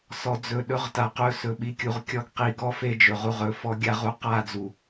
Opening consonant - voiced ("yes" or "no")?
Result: no